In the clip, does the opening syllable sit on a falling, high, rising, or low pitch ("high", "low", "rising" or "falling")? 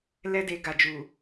high